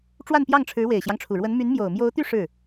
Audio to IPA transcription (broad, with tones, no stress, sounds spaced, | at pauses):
ʈ͡ʂ w a˥˧ n p j ɑ˥˩ ŋ ʈ͡ʂʰ ɻ̩˧˥ w e˨˩ ɪ̯ ɕ j ɑ˦ ŋ ʈ͡ʂʰ u˨˩ ɻ w ə˧˥ n m y˧˥ n m j o˨˩ ʊ̯ m j o˧˥ ʊ̯ t̪ y˥˧ ʂ ɻ̩˥˩